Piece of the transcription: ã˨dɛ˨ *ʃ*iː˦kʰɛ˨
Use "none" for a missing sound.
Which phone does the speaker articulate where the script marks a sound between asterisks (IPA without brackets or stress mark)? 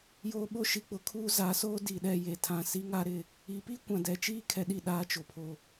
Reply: t͡ʃ